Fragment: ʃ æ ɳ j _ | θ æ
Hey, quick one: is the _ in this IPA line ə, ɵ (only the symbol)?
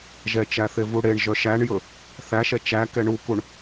ɵ